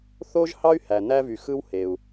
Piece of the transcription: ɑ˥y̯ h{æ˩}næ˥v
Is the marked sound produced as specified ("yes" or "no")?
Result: yes